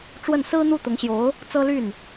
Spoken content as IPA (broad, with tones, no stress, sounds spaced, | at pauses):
ʈ͡ʂ w ə˥˩ n s ɹ̩˥ n̪ u˥˩ t̪ ʊ˧˥ ŋ ɕ j o˧˥ ʊ̯ | t͡s ɤ˥ l y˥˩ n